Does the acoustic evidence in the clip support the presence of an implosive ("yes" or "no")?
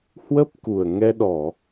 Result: yes